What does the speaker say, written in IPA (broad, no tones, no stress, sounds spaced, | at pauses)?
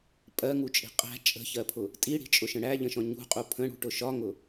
pʼ ɜ ŋ u t͡ʃʼ i̤ qʼ æ̤ t͡ʃʼ ə̤ ç ɜ pʰ ʊ | tʼ i ɽ i̤ t͡ʃʼ ʊ ʃ ə̃ ɽ æ ʎ ə̃ ʃ ɔ̃ ɲ ṳ qʼ u pʰ ə̃ ɽ ṳ ʈ ʊ ʃ ɒ ŋ ʊ